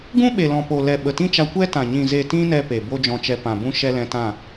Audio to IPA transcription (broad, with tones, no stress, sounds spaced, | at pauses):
ɡ ũ˦ ɓ e˨ l ɔ̃˨ p o˨ l ɛ˨ ɓ ə˨ t ĩ˦ t͡ʃ a˧ kʷ ɛ˦ t ã˨ ɲ ĩ˨ z e˨ t ĩ˧ n ɛ˧ p e˨ b o˦ d͡ʒ ɔ̃˧ t͡ʃ ɛ˧ p ã˨ b ũ˦ ʃ ɛ˧ l ɛ̃˧ t ã˦˨